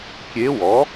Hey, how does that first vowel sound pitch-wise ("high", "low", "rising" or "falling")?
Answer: rising